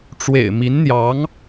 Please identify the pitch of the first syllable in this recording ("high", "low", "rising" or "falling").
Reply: low